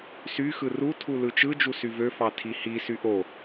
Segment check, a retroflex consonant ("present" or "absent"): absent